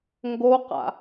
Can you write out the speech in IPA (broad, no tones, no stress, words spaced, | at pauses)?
ŋɡoqa̰